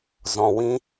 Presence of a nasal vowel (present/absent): present